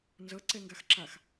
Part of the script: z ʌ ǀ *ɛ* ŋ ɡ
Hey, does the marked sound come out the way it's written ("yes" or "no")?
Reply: yes